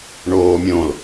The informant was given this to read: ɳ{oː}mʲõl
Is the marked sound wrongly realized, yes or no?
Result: no